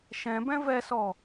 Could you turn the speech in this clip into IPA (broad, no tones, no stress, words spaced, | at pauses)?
ʃɛ̃bɛ̃ vɛsɔ